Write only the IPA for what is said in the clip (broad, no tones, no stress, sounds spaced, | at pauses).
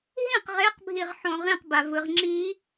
ɦ ĩ q ʁ e q bʱ i ʁ ħ õ ʁ ĩ q b a v ɯ ʁ ŋ͡ǁ i